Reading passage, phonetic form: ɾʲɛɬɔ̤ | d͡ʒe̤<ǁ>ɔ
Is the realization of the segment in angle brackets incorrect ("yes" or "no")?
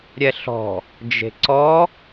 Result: yes